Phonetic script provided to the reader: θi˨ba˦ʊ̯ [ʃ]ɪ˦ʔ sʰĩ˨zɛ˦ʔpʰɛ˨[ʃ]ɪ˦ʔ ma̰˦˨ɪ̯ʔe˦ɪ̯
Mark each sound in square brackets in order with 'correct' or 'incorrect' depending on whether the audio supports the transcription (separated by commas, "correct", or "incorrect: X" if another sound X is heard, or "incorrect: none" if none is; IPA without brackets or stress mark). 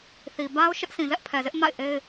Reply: correct, incorrect: z